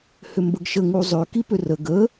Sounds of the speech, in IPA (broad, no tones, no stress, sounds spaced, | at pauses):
h ʏ m b ə ɡ ʃ ə ŋ u zˤ ø k i p ʏ r ə ɡ ə